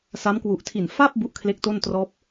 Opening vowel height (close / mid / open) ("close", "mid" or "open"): open